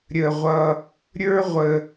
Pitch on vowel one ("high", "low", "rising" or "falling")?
low